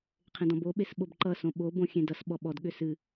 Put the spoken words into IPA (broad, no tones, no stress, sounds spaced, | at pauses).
qʰ ẽ d ɔ̃ b o ɓ e s ɓ o b ǃ ʌ s õ ɓ o b õ xʲ ẽ d ʌ s ɓ ɔ ɓ ɔ d ɠ ʏ s ɨ